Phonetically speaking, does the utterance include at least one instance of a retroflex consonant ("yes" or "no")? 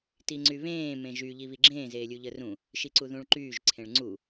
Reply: yes